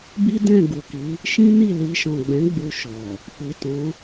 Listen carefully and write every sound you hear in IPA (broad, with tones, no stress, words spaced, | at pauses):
bi˦ dɛ̃˦˨ ɡu˨ki˨˦ | ʃĩ˦ni˦˨li˧ ʃɔ̃˨ɡ͡bɛ̃˨˦ ɡ͡bu˧ʃɔ˨ | k͡pi˨tɔ̃˨˦